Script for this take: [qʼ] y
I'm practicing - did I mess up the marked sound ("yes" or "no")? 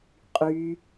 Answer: no